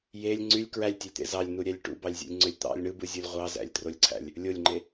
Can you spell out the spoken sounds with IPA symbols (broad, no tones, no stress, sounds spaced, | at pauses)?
j e lʲ ŋ͡ǀ y lʲ k ɹ æ lʲ tʲ e lʲ t̪ ḛ z ɑ lʲ n u ɾʲ æ lʲ ʈ ṵ b ɑ lʲ zʲ ṵ lʲ ŋ͡ǀ ø lʲ t̪ ɑ̰ lʲ ɳ ɯ b ɯ zʲ o lʲ ʁʷ ɑ z æ̰ lʲ t r o lʲ ǀʰ æ̰ lʲ | lʲ o lʲ ŋ͡ǃ e